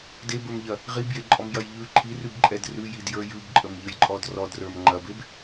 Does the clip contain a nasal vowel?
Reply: no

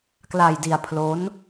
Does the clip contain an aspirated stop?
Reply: yes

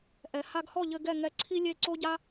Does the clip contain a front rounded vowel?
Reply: no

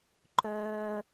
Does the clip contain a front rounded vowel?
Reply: yes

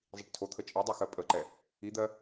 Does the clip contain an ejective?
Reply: yes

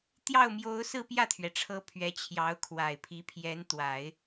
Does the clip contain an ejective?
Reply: no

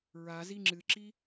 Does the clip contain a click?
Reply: yes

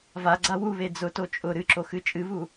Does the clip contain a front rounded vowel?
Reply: no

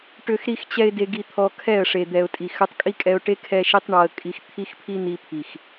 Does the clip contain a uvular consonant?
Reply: no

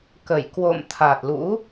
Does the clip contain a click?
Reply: no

